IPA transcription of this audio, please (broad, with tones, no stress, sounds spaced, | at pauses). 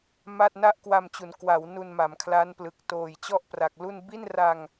m a˥˩ t̚ n a˥˩ ʔ k w a˧ m t͡ɕ u˩˦ n k w a˩˦ w n u˧ n m a˩˦ m kʰ l a˦˥ n p l ɯ˨˩ k̚ t oː˨˩ j t͡ɕ ɔ˥˩ ʔ p r a˨˩ k̚ l u˥˩ n b i˥˩ n r a˧ ŋ